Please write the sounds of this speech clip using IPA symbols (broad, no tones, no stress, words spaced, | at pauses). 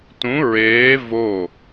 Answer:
tũ ɹeː vo